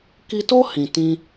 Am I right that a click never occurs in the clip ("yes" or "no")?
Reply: yes